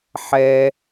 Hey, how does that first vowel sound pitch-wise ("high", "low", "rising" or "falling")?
high